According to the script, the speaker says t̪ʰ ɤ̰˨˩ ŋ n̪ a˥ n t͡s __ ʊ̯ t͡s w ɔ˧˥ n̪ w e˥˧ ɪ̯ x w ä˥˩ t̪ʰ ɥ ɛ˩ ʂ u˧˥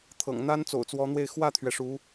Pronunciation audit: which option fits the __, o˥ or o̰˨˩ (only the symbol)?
o̰˨˩